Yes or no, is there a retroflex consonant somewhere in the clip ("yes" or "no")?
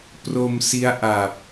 no